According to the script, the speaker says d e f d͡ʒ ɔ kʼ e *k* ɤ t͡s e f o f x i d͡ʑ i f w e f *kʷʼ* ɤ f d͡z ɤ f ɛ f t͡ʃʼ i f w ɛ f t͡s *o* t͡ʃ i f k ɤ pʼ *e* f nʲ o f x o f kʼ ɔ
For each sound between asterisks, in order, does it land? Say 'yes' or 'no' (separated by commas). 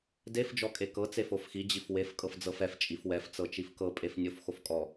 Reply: yes, no, no, yes